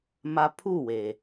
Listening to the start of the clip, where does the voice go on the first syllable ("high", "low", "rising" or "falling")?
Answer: high